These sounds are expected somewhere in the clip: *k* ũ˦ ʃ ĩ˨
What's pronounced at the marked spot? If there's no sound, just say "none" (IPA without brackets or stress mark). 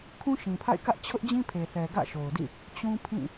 kʰ